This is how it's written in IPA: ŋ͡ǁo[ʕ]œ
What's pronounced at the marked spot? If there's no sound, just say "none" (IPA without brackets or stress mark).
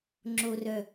r